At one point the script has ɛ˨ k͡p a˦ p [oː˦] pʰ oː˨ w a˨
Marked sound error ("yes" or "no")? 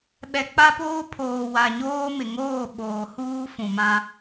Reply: no